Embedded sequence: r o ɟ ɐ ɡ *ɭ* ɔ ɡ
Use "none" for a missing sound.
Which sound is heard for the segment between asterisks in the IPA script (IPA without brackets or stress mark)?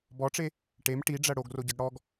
ɽ